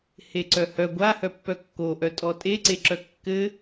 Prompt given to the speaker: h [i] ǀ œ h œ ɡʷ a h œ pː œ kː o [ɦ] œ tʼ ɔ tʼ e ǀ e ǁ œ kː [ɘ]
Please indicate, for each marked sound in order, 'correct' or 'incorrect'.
incorrect, incorrect, correct

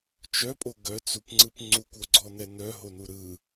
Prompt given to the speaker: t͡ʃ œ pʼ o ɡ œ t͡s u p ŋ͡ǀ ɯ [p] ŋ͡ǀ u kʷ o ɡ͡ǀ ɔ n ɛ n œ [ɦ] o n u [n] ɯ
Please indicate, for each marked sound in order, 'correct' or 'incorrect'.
correct, correct, incorrect

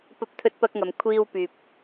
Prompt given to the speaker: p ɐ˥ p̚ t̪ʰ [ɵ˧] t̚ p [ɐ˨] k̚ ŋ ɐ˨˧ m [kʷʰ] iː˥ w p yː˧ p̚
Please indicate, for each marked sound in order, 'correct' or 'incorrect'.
incorrect, incorrect, correct

